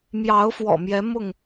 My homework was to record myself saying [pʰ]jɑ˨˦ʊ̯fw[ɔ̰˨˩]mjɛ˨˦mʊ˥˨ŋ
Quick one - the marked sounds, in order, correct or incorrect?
incorrect: m, correct

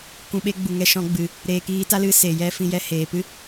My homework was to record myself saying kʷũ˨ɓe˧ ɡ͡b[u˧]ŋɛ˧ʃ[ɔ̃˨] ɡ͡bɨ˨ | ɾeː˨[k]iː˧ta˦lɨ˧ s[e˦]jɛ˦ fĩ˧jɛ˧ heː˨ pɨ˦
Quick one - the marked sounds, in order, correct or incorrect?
incorrect: u˨, incorrect: ɔ̃˧, correct, incorrect: e˨

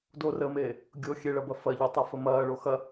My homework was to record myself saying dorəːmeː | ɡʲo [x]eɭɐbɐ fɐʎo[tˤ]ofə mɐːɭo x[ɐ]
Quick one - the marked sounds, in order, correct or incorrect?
incorrect: xʲ, correct, correct

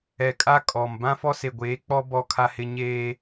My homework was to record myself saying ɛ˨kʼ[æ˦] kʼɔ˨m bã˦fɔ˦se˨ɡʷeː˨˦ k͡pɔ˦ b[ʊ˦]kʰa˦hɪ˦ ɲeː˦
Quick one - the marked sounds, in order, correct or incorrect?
incorrect: a˦, incorrect: ɔ˦

